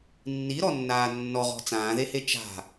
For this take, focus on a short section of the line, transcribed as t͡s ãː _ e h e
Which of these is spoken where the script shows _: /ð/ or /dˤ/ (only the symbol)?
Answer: ð